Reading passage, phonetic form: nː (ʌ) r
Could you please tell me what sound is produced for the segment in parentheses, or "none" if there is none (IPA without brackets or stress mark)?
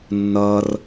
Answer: ʌ